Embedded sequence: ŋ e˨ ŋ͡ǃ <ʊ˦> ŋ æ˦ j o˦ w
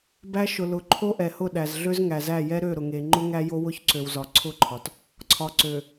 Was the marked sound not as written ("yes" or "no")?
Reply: no